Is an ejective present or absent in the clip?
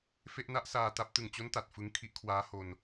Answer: absent